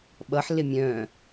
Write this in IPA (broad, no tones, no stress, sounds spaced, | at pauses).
ɓ ʌ ħ l ɪ mʲ œ̃ː